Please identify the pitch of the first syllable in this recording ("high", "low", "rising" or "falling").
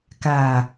low